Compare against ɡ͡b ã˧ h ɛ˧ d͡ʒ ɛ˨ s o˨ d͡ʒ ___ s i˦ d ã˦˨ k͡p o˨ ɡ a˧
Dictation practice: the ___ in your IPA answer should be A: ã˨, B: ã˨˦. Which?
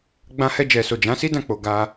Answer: B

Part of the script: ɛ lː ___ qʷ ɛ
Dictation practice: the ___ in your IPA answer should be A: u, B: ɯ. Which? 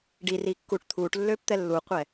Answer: A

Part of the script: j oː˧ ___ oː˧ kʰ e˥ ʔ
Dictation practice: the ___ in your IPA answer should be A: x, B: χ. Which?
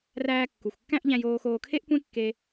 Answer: A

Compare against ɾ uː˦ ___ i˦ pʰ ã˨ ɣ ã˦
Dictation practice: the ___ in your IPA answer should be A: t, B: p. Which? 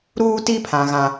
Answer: A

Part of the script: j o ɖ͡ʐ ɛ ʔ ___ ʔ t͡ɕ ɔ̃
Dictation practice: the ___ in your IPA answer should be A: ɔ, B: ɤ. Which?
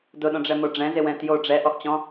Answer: A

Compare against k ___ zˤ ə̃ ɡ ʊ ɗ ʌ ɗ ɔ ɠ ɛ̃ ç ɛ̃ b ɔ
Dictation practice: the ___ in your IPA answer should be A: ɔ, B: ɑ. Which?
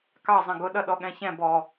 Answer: B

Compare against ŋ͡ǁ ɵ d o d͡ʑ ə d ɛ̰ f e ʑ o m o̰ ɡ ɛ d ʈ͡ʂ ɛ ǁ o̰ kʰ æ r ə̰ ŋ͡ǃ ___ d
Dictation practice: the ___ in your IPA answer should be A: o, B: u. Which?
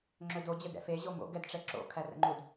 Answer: B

